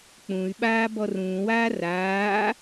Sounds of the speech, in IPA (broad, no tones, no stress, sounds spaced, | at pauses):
k͡p ũ y̯ ɓ aː b ɔ r ũː w aː r aː